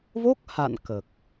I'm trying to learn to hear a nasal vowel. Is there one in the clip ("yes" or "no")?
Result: no